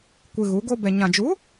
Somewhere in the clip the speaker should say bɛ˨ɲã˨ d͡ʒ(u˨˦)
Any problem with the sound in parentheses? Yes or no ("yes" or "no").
no